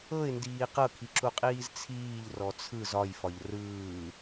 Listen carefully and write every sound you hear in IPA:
ɤɪ̯ndiː qɤkʰiǁuqʼiːz t͡sʰiːʎrɔ t͡sʰɯz ɒjfɒʎ rɯː

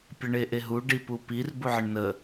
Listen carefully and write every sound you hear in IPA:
pʲəɳeʔeɦu ɖipupir buʕəɳnə

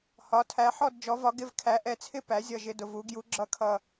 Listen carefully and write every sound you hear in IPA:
hɒ˩˥tʰæ˩˥ ħɔ˥˨dd͡ʒɔ˩˥vɒ˩˥ ɡɪ˥˨vkʰæ˩˥ʔɛ˩˥t͡sʰɪ˥˨ pæ˩˥zʲʌ˨˩ ʒɪ˨˩dʊ˨˩v u˩˥ɡju˩˥ ɡ͡ǁʌ˩˥kʰʌ˨˩

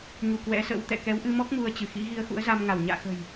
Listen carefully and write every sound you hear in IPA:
ɲu˧˩ kwɛ̰˧˥sə̰˧˥wt̪ɛ̰˧˨ kɛ˨˦wʔɨ˧mɔ˦˥k̚ mu˧ə̯t͡ɕɨ˧˩xḭ˧˥ɣi˧ə̯ xṵ˧˥ə̯za˧mŋa˧˩w ɲa̰ː˧˨xə̤˨˩j

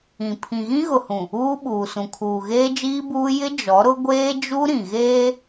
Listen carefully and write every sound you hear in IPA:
ĩ˨ pʰĩ˨ɣĩ˦ɣʊ˨hũ˨ | uː˦ɓuː˨sũ˨ kʰuː˨ɣeː˦d͡ʒiː˦buː˦ jɪ˦ d͡ʒɔ˨˦ɾʊ˦ ɡʷeː˦ d͡ʒu˦ ɾĩ˨ɣeː˦

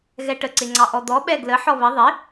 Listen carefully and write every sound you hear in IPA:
ɣɛʈə ǀɪŋ͡ǀɑʔɔd̪ɔ ɓɛɡlə ħɔβə ðˤɪ

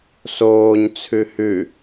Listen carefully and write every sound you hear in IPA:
soːɲ t͡sʰʉhʉ

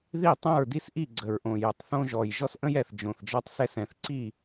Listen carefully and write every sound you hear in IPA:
ði˥˩tˤõ˥˩ɹdi˦sʔi˥˩ ɡ͡ǀə˨˩ɹʔõ˨˩ jə˨˩tˤθõ˦ʒɔ˨˩j ʒɔ˦sʔə̃˦jɛ˨˩θ d͡ʒõ˨˩θd͡ʒɔ˦tˤsɛ˦s ɛ̃˨˩θǀi˥˩

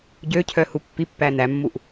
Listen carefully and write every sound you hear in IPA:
ɟøcʰœ hupːipːæ næmːuʔ

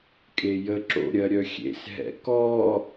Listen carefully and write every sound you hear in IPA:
kʼejə ǁo̰ ɾʲɜɾʲœxʲḛs ɦɛ̰kɔ

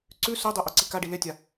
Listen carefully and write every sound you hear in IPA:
ǀʉ sodˤo ʔoǀikaɖi letʲa

